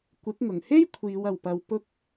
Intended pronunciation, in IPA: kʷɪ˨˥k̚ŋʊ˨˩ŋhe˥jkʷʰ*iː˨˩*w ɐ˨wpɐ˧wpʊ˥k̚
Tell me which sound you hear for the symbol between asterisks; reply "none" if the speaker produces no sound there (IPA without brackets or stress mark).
iː˨˧